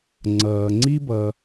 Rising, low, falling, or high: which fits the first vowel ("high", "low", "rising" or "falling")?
low